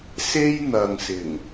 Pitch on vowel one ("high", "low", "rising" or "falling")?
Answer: high